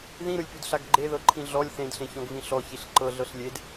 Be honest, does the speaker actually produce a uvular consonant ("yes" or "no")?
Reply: no